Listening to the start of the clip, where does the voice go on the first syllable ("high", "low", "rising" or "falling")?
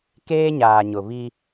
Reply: high